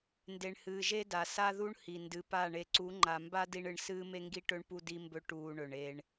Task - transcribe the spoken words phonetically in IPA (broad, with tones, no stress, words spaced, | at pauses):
nde˨ɳhɨː˨ʒe˦da˨ sa˦ðu˦ɳ hi˨ndɨ˨pa˦˨ ɳe˨ǀu˨˦ŋ͡ǃa˨mba˦ di˦ɳɨ˨ɳ sɨː˦me˦ŋɡi˦ʈɵ˦ɳ pu˦di˦mbɵ˦ ʈuː˦ɳɵ˨ɳe˦ɳ